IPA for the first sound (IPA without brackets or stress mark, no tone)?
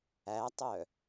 æ